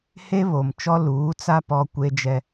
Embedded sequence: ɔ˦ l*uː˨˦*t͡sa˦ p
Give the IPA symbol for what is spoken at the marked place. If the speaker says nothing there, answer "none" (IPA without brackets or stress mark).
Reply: uː˨˦